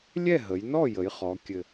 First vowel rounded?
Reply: no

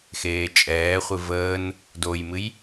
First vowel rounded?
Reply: no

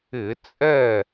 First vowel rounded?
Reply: no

